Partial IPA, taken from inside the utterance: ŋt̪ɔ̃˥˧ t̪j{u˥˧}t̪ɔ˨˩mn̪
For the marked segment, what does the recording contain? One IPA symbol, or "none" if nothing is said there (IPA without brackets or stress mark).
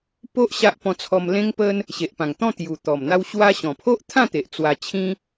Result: u˨˩